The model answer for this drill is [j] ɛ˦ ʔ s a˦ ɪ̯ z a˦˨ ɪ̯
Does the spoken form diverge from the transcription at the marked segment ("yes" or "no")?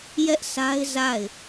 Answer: no